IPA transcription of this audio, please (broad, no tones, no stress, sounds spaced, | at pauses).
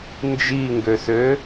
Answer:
n d͡ʒ i ŋ ɡ ø s ø